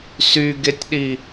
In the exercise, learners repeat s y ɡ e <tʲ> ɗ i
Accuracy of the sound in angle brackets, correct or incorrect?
correct